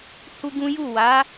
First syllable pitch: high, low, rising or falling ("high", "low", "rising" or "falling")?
high